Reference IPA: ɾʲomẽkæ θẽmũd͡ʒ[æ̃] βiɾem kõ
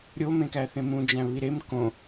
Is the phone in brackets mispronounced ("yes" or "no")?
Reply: no